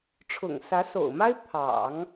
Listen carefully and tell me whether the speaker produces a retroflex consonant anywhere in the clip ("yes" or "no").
yes